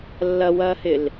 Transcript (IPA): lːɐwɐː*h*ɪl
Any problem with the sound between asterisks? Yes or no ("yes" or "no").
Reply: no